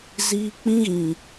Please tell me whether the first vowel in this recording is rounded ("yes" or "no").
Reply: no